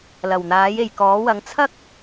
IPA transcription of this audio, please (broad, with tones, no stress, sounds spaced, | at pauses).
l ɐ˨˩ w n̪ aː˨˥ j e˨ j k ɔː˨˥ w ɐ˨˧ ŋ t͡sʰ ɐ˥ k̚